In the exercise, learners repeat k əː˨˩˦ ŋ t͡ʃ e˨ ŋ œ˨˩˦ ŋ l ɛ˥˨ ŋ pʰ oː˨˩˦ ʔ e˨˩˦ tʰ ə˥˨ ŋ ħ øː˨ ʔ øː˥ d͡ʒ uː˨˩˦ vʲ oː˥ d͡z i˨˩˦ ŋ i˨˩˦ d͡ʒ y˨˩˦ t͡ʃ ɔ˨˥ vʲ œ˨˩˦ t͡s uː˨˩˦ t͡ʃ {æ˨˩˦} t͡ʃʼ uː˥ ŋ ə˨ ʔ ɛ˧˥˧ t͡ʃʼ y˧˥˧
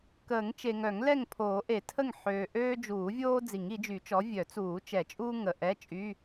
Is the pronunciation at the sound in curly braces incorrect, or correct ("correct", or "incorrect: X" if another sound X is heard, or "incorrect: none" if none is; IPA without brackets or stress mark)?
incorrect: ɛ˨˩˦